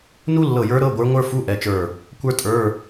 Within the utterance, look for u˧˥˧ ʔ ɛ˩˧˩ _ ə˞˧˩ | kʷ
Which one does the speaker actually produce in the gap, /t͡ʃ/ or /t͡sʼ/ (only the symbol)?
t͡ʃ